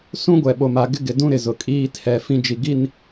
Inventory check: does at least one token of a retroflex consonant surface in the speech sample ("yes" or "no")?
no